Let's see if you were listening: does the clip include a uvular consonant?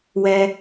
no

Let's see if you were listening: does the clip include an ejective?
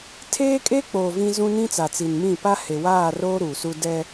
yes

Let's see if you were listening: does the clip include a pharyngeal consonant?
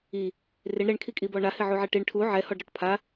yes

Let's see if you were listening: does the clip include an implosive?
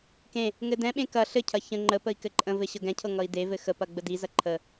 yes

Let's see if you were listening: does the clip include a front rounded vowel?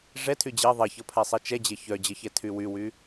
yes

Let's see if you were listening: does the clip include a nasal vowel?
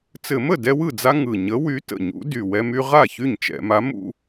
no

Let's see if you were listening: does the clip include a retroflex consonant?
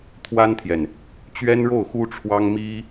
yes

